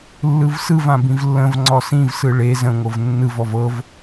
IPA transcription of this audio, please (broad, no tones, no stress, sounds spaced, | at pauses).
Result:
lː ɯ v s ɯ v ã b ĩ v lː ə̃ v ŋ͡ǀ ɔ s ĩ v s ɯ ɭ e z ə̃ ŋʷ ɤ v nː ɯ v ɔ v ɤ v